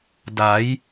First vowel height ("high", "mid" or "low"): low